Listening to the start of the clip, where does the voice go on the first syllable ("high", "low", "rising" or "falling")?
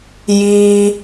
high